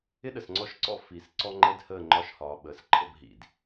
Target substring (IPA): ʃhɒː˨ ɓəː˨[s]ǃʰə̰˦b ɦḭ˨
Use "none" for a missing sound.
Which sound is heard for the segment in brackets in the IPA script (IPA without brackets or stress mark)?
s